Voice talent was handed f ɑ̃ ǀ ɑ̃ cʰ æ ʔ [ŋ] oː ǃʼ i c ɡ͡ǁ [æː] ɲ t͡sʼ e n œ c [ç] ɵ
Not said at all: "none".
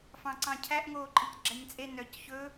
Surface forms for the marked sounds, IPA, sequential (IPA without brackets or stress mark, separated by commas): ŋ, æ, ç